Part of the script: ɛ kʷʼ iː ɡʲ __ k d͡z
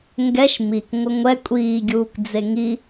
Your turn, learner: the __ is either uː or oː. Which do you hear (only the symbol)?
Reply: uː